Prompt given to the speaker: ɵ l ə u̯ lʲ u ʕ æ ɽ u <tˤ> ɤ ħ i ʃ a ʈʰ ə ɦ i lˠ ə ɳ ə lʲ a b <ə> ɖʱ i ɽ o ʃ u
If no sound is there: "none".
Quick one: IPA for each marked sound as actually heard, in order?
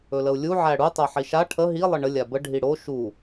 tˤ, ə

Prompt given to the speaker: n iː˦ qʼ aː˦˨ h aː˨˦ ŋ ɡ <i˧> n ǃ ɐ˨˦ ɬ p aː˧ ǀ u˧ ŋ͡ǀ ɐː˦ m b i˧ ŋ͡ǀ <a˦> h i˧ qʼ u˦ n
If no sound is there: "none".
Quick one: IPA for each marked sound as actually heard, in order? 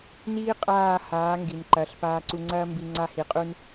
i˨, a˦

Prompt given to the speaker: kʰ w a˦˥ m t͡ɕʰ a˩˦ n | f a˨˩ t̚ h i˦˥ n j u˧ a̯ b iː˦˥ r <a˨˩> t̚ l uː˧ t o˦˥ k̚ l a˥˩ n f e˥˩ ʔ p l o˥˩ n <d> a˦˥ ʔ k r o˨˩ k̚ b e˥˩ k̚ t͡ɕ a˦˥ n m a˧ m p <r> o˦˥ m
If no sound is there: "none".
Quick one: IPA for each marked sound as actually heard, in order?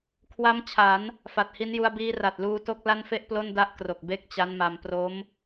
a˨˩, d, r

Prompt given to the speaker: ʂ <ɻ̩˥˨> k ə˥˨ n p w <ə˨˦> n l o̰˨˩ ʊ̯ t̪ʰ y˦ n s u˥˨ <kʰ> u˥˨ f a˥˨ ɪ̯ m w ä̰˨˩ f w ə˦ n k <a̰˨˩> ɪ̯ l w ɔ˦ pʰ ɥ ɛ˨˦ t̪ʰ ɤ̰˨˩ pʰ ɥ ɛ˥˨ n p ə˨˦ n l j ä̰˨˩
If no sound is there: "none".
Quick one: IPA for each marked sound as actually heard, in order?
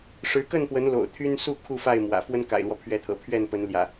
ɻ̩˨˦, ə˨˦, kʰ, a̰˨˩

